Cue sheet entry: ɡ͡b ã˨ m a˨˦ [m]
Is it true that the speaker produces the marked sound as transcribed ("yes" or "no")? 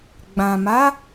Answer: no